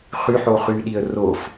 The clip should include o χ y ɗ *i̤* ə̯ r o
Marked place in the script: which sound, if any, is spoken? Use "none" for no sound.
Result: i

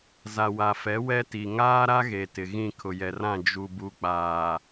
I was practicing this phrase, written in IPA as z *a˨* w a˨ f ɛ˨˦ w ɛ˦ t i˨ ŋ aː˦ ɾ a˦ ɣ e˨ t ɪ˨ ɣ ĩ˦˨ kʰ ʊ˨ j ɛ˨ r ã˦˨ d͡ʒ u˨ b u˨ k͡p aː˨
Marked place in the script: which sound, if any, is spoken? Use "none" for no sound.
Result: a˨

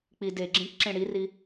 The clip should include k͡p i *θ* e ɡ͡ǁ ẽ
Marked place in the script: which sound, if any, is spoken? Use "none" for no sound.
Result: d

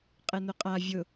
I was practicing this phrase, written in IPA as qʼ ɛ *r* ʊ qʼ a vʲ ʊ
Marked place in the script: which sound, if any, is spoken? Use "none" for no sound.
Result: n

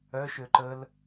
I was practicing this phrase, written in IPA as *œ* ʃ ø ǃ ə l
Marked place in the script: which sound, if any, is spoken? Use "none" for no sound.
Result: œ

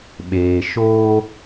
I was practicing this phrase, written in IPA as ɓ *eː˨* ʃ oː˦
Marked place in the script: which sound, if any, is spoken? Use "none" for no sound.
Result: eː˨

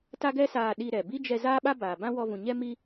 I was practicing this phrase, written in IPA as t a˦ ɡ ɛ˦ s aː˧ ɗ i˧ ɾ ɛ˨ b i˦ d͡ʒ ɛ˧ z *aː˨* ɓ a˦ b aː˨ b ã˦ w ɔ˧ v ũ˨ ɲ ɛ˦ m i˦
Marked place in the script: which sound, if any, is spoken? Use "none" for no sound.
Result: aː˦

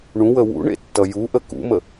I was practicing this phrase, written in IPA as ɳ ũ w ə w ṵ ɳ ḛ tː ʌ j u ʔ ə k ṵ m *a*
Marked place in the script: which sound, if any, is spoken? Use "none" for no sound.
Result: ə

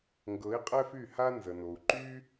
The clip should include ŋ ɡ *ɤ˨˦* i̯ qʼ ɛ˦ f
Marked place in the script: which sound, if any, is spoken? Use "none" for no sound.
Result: ɤ˨˦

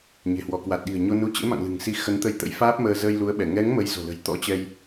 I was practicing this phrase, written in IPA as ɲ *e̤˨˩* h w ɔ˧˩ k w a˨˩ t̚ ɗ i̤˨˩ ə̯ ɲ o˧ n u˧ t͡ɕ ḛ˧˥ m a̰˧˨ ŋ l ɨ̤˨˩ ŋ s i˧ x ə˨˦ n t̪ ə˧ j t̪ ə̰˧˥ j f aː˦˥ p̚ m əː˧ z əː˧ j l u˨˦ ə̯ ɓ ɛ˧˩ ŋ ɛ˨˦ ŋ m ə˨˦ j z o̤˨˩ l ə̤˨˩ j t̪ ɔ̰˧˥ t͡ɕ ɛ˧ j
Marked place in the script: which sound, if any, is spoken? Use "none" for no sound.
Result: e̤˨˩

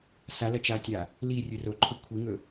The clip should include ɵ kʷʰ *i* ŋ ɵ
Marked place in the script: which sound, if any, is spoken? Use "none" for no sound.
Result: i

